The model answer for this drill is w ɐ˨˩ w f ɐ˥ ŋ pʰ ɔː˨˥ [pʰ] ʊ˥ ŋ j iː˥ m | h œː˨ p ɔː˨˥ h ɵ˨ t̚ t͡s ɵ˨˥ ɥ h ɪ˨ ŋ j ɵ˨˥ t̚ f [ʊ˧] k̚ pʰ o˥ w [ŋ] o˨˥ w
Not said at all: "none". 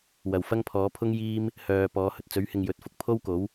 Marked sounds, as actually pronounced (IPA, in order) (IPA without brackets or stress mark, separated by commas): pʰ, ʊ˧, k